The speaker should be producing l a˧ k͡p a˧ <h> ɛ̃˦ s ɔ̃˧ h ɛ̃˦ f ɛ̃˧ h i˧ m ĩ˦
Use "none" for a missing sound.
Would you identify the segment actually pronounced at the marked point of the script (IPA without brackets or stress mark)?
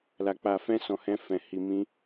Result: f